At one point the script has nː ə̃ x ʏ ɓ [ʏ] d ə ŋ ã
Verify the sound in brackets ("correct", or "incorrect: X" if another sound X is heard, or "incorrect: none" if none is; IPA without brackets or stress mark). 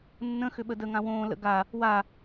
incorrect: ə